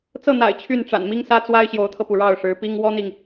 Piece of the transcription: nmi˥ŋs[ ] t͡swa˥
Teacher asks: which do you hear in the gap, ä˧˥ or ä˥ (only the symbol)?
ä˥